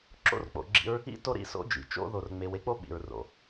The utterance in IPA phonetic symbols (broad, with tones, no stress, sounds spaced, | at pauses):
ǁ o̰˦ r k͡p o̰˨ ɡ͡ǁ ḭ˦ ɹ | ḭ˦ t o˦ ɾ ḭ˦ s o̰˦ d͡ʒ ḭ˨ t͡ʃ o̰˦ ð o˨ r ŋ͡m e˨ w e˦ k͡p o˦ ɓ ḭ˨ ɹ r o̰˨